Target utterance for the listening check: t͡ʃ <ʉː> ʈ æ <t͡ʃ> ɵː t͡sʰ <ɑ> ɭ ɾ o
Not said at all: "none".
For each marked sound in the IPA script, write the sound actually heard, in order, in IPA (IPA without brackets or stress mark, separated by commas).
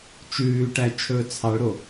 ʉː, t͡ʃʰ, ɑ